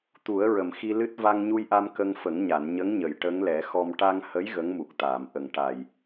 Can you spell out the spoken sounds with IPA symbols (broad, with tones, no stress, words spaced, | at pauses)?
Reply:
t̪u˨˩˦ə̯ɹə˨˩˨m xi˧lɨ˦˥t̚ va˧ŋɲu˧jʔa˧m kə˧ŋfə˨˩˦ŋɲa˨˩˨n ɲə˧˥ŋɲə˨˩˨j ʈə˧˥ŋlɛ˨˩˦xɔ˧m ʈa˧ŋhə˧˥j ɣə˧˥ŋmu˨˩k̚t̪aː˨˩˨m ʔə˨˩ŋʈa˨˩j